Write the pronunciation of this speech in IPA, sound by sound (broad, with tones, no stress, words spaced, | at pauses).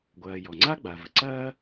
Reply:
ɡʷɐː˩ jɔ˩ŋ͡ǀa˥ ɡ͡ba˩və˩ ǀɐː˥